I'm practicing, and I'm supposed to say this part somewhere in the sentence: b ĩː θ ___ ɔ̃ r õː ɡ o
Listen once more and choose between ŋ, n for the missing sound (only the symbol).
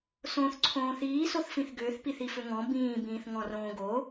ŋ